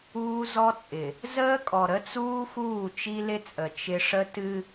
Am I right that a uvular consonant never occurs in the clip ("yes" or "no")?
yes